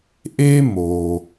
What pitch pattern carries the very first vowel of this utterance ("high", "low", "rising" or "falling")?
high